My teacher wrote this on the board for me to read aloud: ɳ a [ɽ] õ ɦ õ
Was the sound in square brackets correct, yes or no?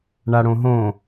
yes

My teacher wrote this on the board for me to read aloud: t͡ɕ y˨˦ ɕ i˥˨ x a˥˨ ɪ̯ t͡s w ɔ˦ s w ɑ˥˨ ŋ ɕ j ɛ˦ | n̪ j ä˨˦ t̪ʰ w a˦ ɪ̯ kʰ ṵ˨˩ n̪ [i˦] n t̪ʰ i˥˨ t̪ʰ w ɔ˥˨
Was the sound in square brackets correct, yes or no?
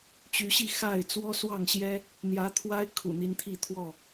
yes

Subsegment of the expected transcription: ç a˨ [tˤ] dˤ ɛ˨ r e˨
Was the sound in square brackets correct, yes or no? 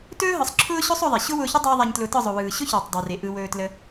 yes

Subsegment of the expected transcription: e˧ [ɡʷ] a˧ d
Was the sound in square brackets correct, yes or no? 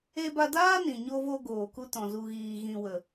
no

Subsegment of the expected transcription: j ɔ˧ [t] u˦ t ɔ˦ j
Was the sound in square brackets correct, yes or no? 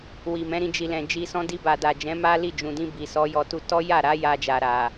yes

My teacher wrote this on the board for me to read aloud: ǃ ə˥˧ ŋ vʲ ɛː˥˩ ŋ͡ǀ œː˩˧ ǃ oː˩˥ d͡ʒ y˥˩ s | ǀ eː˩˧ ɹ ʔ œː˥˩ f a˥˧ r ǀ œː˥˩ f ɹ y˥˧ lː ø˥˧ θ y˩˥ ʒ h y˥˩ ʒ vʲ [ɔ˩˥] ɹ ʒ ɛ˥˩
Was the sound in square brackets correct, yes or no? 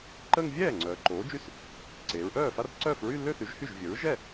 no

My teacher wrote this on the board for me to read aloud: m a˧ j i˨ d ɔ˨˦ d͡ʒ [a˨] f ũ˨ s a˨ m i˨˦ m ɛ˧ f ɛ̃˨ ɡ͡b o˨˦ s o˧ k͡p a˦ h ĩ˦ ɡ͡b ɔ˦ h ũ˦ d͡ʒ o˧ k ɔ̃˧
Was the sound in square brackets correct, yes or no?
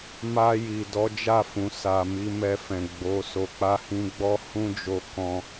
no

